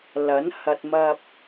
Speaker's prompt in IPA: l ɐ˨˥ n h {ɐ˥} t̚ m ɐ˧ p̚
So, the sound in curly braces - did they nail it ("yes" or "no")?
no